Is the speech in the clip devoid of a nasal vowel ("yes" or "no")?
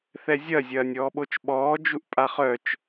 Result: yes